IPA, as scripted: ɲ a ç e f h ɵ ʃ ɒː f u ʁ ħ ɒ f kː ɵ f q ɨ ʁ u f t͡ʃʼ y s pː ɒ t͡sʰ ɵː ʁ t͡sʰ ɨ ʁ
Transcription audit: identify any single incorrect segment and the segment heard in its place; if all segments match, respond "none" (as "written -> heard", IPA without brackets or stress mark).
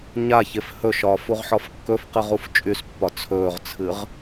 none